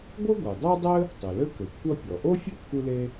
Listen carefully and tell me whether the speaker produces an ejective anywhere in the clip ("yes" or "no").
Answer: no